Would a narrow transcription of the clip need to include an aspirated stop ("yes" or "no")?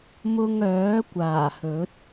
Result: no